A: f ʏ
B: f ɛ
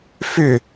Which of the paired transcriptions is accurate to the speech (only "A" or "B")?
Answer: A